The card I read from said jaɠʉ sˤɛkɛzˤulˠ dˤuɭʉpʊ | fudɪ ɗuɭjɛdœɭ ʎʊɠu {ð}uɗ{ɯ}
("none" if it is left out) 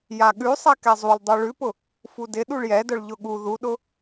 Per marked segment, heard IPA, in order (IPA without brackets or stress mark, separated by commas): ð, ʊ